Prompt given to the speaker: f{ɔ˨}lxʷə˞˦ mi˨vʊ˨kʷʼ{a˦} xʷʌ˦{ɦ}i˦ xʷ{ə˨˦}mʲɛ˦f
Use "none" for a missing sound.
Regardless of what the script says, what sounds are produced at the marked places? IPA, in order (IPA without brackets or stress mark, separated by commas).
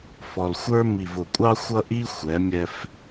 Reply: ɔ˨, ɑ˦, ʔ, ɛ˨˦